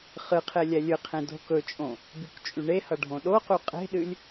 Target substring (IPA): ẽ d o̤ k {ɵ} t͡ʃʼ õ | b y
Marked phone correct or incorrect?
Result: correct